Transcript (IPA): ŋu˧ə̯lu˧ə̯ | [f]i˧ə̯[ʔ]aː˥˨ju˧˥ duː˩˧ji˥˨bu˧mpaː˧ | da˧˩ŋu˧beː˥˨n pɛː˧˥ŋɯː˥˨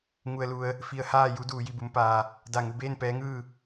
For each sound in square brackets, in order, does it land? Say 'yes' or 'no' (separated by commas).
yes, no